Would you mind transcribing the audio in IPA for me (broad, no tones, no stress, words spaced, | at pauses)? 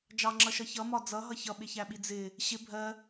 d͡ʒɑŋ͡ǁʌʃʌ çʌmɒ d͡zʌɦʌ çʌɓɪçæɓi d͡zɪ | ɕɪ bʱɜ